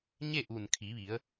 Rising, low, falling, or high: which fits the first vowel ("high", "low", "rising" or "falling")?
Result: falling